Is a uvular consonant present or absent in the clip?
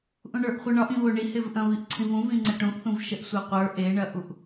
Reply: present